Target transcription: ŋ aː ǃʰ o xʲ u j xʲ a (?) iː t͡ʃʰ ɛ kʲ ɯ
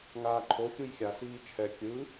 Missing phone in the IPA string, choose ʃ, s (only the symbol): s